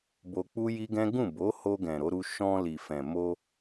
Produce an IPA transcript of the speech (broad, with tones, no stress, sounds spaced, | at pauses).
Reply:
b o˧ k͡p u˦ j i˦ ɡ ɛ̃˦ ɡ ũ˦˨ b o˨˦ h o˧ ɡ ɛ̃˨ ɾ o˨˦ ɾ u˧ ʃ ɔ̃˧ l i˨ f ɛ̃˨ m o˧